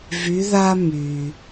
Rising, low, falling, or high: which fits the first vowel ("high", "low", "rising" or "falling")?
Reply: rising